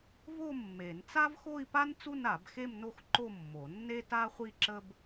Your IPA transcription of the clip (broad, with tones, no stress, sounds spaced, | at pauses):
v o˥˧ mː e˨˩˦ n t͡s a˥ v x o˥˧ i̯ p a˥ n t͡s u˥˧ n a˨˩˦ b x e˥˧ m n o˥˧ x ǃ o˥˧ mː o˨˩˦ nː e˥ t a˥ χʷ i˥˧ ǁ ə˥ b